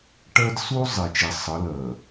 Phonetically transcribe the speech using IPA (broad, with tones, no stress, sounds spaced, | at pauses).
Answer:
ʈ ɜ˦ d s u˦ zˤ i˨ t͡ʃ i˨ sˤ ə˨˦ l ɜ˨